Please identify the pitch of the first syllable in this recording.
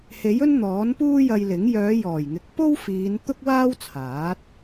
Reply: rising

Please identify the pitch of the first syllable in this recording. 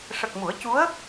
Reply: low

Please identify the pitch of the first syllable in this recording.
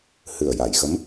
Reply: low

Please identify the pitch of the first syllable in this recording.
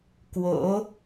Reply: rising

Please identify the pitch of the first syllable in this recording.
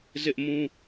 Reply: high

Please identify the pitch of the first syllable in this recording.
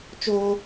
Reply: high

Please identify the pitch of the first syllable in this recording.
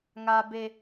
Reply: high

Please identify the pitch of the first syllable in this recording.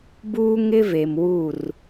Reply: high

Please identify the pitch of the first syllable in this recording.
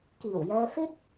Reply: low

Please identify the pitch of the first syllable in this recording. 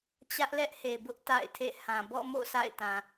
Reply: high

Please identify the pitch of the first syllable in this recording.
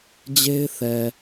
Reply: high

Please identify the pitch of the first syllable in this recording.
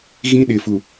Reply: high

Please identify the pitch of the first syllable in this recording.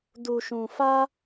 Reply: low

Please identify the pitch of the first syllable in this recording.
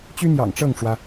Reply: high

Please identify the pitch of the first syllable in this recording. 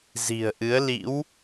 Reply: low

